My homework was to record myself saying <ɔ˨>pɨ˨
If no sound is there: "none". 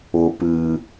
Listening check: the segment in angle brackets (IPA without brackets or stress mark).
ʊ˨